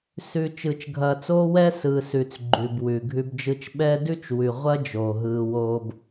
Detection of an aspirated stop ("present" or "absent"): absent